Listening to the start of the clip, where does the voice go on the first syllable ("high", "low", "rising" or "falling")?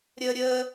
high